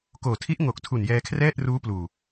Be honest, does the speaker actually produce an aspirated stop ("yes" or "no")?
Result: yes